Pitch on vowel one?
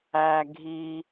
low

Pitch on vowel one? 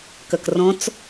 low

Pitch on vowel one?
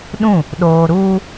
falling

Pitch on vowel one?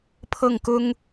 falling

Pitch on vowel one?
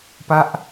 falling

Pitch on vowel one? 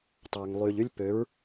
low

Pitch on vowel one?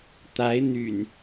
rising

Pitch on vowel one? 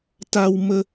high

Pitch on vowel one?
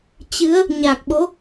rising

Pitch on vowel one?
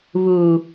low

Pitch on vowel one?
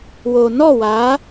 low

